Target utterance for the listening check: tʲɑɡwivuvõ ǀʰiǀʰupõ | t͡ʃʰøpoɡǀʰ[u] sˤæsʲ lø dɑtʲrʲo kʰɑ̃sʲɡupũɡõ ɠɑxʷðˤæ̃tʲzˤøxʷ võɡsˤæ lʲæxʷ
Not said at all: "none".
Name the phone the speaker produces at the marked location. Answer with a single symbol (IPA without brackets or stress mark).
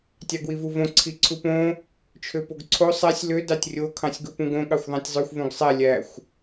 o